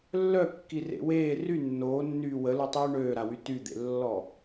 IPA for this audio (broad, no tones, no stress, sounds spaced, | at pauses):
lː œ kː i r ḛ w eː r y nː oː nː yː w ə l u tˤ yː ɳ øː ɾ a w y t y d̪ ḛ lː ɔ